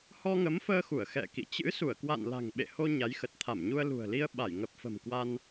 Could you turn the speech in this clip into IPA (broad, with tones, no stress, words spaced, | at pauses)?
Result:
hɔ˧ŋə˨˦mfəː˧xu˧˩ə̯ xɛ̰˧˨kḭ˧˨ t͡ɕɨ̰˧˥su˧˩ə̯kwa̰˧˨n la̤˨˩ŋɓḛ˧˨ ho˧ ɲa˨˦jxə˨˩t̚ t̪ʰa˧˩mɲu˧ə̯lṳ˨˩ə̯li˧ə̯ ɓa˧˩jŋə˨˩p̚fə̤˨˩m kwa˧n